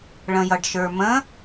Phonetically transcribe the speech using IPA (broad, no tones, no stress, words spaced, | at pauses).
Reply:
ɭə̃jʌɖʃə˞mə̃